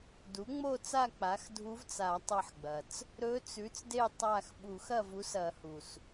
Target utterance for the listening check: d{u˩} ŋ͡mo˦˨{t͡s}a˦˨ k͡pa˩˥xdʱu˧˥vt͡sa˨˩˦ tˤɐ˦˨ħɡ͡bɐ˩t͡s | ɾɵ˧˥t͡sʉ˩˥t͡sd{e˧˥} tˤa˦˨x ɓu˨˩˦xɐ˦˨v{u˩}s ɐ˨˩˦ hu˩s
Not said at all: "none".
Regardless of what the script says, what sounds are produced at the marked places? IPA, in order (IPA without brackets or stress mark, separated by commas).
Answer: u˩˥, t͡s, e˦˨, u˩˥